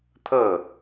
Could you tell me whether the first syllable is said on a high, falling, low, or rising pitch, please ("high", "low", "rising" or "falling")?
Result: falling